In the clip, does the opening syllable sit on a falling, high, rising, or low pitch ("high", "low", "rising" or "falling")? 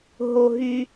low